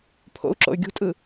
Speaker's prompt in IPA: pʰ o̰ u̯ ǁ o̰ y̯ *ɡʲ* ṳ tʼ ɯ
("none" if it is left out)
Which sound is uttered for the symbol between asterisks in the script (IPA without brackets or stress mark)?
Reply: ɡʲ